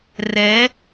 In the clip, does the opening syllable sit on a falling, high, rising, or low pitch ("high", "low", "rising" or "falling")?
rising